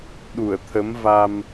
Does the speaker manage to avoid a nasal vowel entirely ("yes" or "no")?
yes